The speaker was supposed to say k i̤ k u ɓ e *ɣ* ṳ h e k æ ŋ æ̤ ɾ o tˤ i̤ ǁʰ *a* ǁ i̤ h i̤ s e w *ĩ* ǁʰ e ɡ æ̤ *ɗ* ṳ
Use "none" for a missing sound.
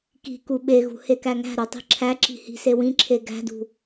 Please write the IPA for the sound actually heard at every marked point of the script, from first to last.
ɣ, æ, ĩ, d

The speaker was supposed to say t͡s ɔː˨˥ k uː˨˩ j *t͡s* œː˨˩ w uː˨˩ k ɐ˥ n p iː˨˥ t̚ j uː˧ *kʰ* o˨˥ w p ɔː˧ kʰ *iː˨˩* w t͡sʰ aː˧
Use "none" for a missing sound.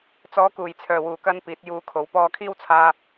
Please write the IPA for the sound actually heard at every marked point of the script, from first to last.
t͡sʰ, kʰ, iː˥

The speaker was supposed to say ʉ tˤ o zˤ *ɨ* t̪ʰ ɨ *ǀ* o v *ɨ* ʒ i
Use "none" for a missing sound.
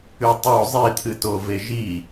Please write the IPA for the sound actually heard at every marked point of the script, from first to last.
i, t, e

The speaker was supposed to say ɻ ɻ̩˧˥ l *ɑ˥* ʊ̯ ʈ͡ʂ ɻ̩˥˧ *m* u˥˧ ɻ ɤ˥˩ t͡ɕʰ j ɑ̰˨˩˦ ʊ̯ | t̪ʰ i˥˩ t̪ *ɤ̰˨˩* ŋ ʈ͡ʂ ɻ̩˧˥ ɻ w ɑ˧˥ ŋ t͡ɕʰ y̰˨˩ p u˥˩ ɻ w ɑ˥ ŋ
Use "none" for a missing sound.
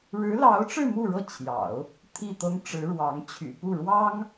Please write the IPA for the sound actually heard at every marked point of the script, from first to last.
ɑ˧˥, m, ɤ˥

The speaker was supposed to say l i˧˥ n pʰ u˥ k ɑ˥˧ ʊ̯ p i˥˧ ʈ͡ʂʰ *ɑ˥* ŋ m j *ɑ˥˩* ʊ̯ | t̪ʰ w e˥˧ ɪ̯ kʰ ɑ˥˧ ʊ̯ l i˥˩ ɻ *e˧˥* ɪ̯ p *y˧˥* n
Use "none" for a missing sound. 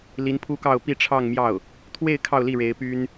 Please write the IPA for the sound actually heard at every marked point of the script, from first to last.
ɑ˥˧, ɑ˥˩, e˧˥, y˥

